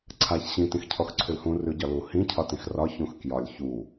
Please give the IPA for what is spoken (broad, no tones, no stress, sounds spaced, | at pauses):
ǀʰ a ç ɕ ĩ t ĩ x cʰ ɔ x ǀʰ ʉ l h ũ r ʉ ɟ ɒ l u h ĩ cʰ ɒ t ĩ x r ɒ ç ũ x k j ɒ lʲ ç u